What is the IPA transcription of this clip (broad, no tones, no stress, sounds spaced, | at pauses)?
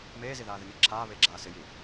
m eː z i ð aː ð ɪ n ɪː ǁʰ aː β e ɡ͡ǁ aː s ɪ j i